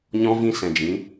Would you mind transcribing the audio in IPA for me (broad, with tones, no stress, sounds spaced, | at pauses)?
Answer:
ɲ ɔ̃˦ v ĩ˦ s ɛ̃˨ d͡ʒ ĩ˨˦